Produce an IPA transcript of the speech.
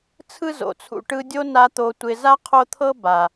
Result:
t͡sʰ ɯ˦ z o̰˨ t͡sʰ ṵ˧ ʈ ɯ˧ dʲ o˦ n a˧ t̪ o˧ tʷ ɪ˧ z a˦ qʰ o˦ t̪ʰ ɤ˦ b a˨

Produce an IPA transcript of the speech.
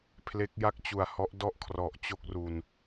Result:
pʰ l e˦˥ k̚ j a˥˩ k̚ t͡ɕ u˨˩ a̯ h ɔ˦˥ ʔ d ɔ˥˩ ʔ kʰ r ɔ˨˩ ʔ t͡ɕ o˥˩ k̚ r u˧ n

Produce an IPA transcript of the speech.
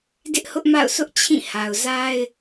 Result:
d ɪ˦ ʔ h ʊ˦ ʔ m a̰˦˨ ʊ̯ s ʊ˦ ʔ t͡ɕʰ ĩ˦˨ h a˨ ʊ̯ z a˦ ɪ̯

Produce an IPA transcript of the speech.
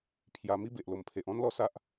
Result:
pʰ j a˧ m i˦ b e˨ ʔ l o˨˩ m pʰ e˨ ʔ ɔ̃˦ n l ɔ˥˧ s a˦ ʔ

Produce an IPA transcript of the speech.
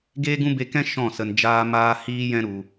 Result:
ɡ eː˦ ɡ ũ˦ b e˧ k ɛ̃˦ ʃ ɔ̃˦˨ s ə˧ n d͡ʒ aː˧ m aː˧ h iː˦ j ɛ̃˦ ɾ u˧

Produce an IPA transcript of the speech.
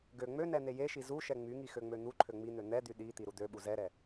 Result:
ɡ ø ŋ͡m ø n ɛ n̪ e j e ʃ i z u ʃ ɛ ŋ͡m y ŋ i x ø ŋ͡m ø n̪ u ǃʰ ø ŋ͡m i n̪ ø n̪ ɛ d̪ y ɗ i t̪ i ɾ u d̪ ø ɓ u z ɛ ɾ ɛ

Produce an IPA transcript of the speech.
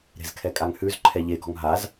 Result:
ɾ e̤ z kʰ ɛ kʼ a ŋ h ʉ z ǃʰ ɛ ʎ e ɡ ɔ̤ ŋ ɦ a z

